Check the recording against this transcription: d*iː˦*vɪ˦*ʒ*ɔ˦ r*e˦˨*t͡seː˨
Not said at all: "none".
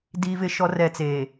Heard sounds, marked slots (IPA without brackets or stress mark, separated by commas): iː˦, ʃ, ɛ˦˨